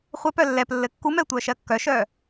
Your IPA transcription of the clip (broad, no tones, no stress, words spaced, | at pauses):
χʷɛpœ lːɛp lːɘkːumɛ tʷœːʃɜkːœʃœː